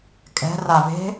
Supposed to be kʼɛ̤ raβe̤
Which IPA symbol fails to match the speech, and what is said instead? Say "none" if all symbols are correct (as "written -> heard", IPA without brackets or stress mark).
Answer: none